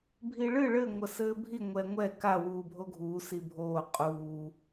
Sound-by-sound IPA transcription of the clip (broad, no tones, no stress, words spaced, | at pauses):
bʱiɭɨ ɭɘ ŋʷɐsɘːbʱi ŋʷɛŋʷɛ ka wuːbʱoɡʱuː sibʱoː qʼuː